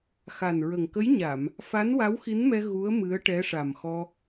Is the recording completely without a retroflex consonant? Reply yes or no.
no